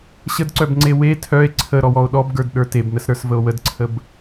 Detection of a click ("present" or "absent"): present